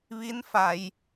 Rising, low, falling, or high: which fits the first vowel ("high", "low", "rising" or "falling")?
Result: rising